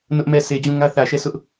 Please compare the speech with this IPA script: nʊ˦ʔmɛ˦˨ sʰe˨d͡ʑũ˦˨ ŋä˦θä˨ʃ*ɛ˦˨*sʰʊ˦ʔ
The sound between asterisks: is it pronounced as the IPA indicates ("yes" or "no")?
yes